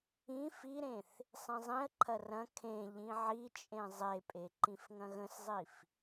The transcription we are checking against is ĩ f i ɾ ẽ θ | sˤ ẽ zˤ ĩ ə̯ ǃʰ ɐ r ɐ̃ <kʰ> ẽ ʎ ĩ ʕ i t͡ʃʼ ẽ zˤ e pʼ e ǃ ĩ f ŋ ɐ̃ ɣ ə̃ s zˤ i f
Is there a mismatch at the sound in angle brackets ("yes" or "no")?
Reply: no